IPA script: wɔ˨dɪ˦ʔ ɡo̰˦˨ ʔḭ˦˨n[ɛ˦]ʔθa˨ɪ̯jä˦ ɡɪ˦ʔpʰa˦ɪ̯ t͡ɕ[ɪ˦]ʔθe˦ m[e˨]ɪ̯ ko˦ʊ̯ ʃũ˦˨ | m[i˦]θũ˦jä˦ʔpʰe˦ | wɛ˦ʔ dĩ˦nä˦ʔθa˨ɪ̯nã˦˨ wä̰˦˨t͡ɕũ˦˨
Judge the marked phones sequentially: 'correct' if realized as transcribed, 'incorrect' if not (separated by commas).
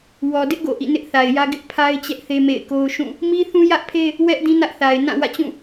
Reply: incorrect, incorrect, incorrect, correct